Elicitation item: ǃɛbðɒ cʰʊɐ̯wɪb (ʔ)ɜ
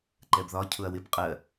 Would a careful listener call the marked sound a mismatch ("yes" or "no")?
yes